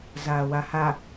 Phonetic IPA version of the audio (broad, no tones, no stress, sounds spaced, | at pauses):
z aː w a h a